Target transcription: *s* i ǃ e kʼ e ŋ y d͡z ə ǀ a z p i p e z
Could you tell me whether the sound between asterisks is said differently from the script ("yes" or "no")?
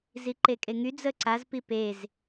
yes